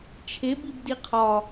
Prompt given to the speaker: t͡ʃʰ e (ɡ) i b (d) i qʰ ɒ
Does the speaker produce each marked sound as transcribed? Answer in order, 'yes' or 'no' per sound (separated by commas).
no, yes